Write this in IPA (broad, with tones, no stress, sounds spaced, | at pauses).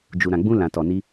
d͡ʒ u˨ ɾ ã˨ ɡ͡b ũ˧ l ã˨ t ɔ˨ n i˧